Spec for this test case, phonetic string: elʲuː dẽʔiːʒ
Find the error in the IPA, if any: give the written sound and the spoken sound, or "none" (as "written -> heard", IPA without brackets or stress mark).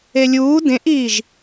none